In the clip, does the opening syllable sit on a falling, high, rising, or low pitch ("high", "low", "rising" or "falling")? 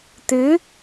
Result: rising